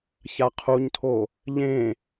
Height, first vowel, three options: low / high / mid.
low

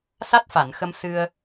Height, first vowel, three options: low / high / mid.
low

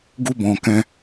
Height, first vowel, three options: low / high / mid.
high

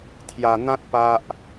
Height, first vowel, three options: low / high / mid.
low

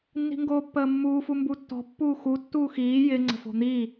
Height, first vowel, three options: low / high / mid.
high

